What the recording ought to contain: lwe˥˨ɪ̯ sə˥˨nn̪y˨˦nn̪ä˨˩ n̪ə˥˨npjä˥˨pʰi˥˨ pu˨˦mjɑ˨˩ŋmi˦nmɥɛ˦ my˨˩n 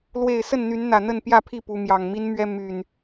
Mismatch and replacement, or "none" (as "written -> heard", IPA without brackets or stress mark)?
none